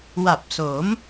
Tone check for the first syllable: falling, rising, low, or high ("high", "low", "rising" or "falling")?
low